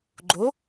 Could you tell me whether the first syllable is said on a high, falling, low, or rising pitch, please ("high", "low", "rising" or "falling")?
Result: rising